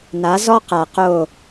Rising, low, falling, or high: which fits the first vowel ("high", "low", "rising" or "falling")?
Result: rising